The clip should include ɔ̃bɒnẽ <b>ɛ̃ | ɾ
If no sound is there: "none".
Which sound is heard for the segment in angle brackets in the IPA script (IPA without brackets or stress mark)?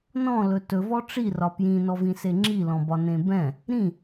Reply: b